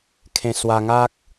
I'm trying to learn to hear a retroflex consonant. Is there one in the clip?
no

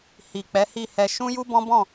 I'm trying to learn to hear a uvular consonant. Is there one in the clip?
no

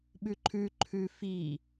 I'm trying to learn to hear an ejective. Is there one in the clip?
no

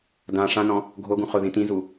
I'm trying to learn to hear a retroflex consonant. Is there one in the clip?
yes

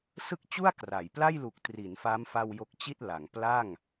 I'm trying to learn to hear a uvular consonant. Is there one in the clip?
no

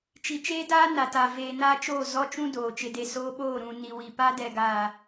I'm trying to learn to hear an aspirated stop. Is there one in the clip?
no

